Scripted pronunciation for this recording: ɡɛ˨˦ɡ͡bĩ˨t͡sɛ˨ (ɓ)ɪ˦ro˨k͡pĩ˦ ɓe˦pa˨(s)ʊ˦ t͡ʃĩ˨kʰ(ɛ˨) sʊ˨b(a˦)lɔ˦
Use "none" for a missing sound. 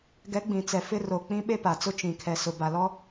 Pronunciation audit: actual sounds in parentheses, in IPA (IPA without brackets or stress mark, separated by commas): f, t͡s, ɛ˨, a˨